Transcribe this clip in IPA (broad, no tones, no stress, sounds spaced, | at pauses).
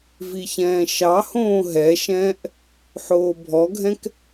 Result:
v i ç ɛ̃ː ʃ ɑ h õː ɦ ɛ ʃ ɛ̃ː ʔ | ħ oː bʱ ɔ ɡʱ ɛ̃ k